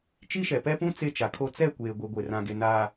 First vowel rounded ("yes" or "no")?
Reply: no